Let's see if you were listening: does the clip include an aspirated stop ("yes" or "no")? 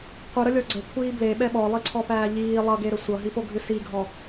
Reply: yes